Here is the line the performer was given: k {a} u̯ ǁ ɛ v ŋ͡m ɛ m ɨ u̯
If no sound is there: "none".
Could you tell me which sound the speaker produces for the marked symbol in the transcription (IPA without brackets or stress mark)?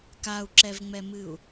a